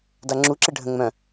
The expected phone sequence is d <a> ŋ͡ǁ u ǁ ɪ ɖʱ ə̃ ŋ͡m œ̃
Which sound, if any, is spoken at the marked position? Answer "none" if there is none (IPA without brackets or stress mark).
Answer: a